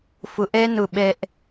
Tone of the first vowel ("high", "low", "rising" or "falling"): rising